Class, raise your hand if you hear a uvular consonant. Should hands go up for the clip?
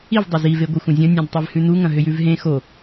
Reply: no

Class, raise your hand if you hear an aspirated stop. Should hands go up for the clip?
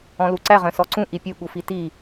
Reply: no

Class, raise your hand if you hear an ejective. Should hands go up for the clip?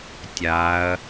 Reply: no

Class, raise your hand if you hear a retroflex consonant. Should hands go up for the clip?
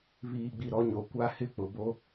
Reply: no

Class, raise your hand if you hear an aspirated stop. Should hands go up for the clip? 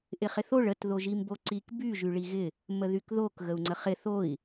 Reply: no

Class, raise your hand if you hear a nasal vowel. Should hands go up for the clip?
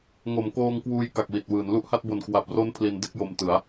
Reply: no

